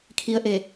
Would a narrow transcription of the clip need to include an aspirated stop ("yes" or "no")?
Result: yes